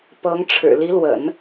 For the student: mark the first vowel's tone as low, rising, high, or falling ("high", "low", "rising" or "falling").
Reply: rising